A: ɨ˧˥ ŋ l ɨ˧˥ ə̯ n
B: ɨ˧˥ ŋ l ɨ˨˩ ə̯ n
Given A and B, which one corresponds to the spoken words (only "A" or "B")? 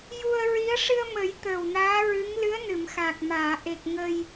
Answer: A